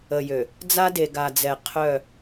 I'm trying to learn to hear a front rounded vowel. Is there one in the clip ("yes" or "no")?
yes